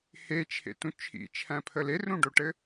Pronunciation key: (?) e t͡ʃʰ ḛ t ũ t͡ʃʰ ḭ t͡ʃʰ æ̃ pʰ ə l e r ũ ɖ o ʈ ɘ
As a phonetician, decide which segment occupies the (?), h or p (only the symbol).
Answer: h